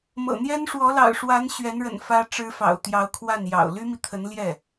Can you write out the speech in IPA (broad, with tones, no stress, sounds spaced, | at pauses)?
m ɤ̰˨˩ n̪ j ɛ˥ n ʂ w ɔ˧˥ l ɑ̰˨˩ ʊ̯ ʂ w a˧˥ n ɕ ɥ ɛ˧˥ n ɻ ə̰˨˩ n f ä˥ ʈ͡ʂ ɻ̩˥ f ɑ̰˨˩ ʊ̯ t̪ j ɑ˧˥ ʊ̯ kʰ w a˥˩ n j ɑ̰˨˩ ʊ̯ l y˥ m i˨ t̪ʰ ə˧˥ n l j ɛ˥˩